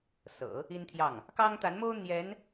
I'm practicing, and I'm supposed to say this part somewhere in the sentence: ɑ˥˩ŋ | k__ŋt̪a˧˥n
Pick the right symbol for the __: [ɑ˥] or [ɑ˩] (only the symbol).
ɑ˥